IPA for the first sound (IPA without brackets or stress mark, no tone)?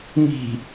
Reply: m